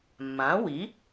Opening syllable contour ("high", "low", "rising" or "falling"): rising